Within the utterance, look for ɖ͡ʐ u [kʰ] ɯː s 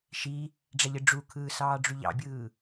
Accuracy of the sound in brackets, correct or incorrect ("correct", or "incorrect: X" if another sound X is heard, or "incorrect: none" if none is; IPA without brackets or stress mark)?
correct